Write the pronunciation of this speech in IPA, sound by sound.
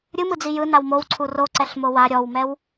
ɾʲ ɯ m ɯ d͡z i j ɯ n a w m o w ǀʰ u r o ǀ ɛ ɬ m o w a ɾʲ ɔ w m ɛ w

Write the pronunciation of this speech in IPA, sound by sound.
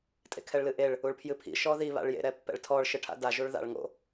tʼ ḛ kʰ ɛ ɭ l ɨ ʔ e ɭ | u ɭ pʰ j ɨ pʰ ḭ ʃ ɔ ð i β a̰ ɭ j ḛ ɾ ɛ pː ɛ̰ ɭ tʰ ɔ ɭ ʃ ɨ ʈʰ a̰ d a ʒ u ɭ ð a̰ ɭ ŋ o̰

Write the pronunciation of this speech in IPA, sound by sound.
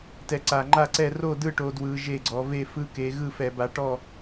t ɛ˨˦ ǀ a˨˩ ŋ͡ǃ a˥˨ ǀ ɛ˥˨ r o˥˨ d ɯ˥˨ ʈ o˨˦ d w ɯ˨˦ ʒ e˥˨ ɡ͡ǀ ɔ˨˦ v e˥˨ f ɯ˦˥ k e˨˦ ɣ ɯ˥˨ f ɛ˧˩˧ b a˨˦ ʈ ɔ˥˨

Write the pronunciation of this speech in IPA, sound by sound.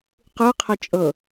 q ɯ qʰ ɛ t͡ʃʼ ɤ

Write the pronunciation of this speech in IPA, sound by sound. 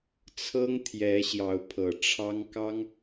t͡sʰ ɤ˥ ŋ t̪ʰ j ɛ˧˥ ɕ j ɑ˧˥ ʊ̯ pʰ ɤ˨˩ ʈ͡ʂʰ ɑ˥ ŋ k ɑ˥ ŋ

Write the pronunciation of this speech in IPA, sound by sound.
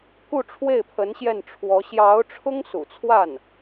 k u˥˧ ʈ͡ʂʰ w e˥˩ ɪ̯ pʰ ə˧˥ n ɕ j ɛ˥˩ n ʈ͡ʂʰ w ɔ˧˥ ɕ j ɑ˧˥ ʊ̯ ʈ͡ʂʰ ʊ˥ ŋ s ṵ˨˩ t͡sʰ w a˥˩ n

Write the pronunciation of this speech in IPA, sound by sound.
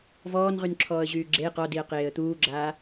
v ɔː n ʁ y n ǁʰ ɔː ə̯ ʑ yː ɡ͡ǁ e q ɔ d i ə̯ q eː ə̯ t̪ uː ɡ͡ǁ aː

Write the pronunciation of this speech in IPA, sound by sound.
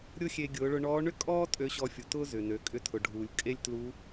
ɾʲ ʊ˥ xʲ e˧ ɡʲ ʊː˩˧ ɭ ʊ˧ ɳ ɔː˧˥ ɳ ʏ˥ kʼ ɔː˥ tʼ ø˧˥ ɕ ɔ˧ fʲ u˩ t ʊː˥ z ʏ˩ n ø˩˧ kʼ ʏ˧ tʰ ʊ˩ ɖʱ uː˩ lʲ kʼ e˥ lʲ t l u˧˥

